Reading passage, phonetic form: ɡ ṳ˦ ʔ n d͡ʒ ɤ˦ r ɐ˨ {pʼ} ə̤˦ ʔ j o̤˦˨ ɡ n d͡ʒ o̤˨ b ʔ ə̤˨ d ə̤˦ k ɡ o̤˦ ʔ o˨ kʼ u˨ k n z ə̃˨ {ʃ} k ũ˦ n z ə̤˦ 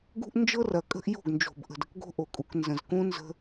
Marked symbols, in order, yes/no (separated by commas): no, no